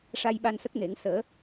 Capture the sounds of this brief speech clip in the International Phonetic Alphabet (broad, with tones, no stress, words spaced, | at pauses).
ʂa˧j ɓa˧nsə˦˥k̚ne˨˩˦ŋ səː˨˩˦